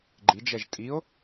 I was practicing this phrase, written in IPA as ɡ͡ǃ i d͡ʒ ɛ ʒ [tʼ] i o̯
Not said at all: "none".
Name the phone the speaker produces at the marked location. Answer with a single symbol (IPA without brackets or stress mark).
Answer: tʼ